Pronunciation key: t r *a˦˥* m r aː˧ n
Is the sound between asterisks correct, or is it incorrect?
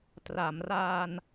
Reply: incorrect